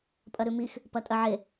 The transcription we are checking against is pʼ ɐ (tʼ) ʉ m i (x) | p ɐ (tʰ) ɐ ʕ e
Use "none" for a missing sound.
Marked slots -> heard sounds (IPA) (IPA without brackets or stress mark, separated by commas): ɾ, x, tʼ